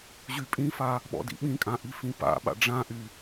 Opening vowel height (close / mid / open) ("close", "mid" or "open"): close